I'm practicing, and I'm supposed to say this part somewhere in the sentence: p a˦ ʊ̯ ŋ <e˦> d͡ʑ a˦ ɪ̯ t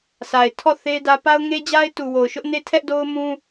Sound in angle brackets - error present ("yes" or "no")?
no